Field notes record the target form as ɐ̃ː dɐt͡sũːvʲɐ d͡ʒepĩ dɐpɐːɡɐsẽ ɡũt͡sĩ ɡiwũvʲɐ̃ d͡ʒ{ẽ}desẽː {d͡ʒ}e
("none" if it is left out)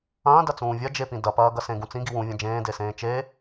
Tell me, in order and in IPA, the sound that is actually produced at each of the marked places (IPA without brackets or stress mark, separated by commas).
ẽː, t͡ʃ